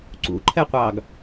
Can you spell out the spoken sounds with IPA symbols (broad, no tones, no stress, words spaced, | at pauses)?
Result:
ǀṵǃʰɛqʷɑːɡ